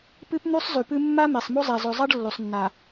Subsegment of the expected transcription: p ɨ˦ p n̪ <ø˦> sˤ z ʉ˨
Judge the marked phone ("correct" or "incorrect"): incorrect